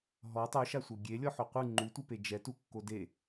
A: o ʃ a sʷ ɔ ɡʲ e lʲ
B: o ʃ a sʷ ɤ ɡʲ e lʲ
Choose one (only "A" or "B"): B